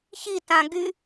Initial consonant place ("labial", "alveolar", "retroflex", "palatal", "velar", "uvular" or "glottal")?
palatal